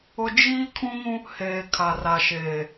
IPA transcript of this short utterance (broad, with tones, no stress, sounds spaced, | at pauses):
ʊ˦ d͡ʒ iː˦ kʰ ũ˦ ŋ ũ˦ | h eː˨ kʰ a˨ r a˨ ʃ eː˨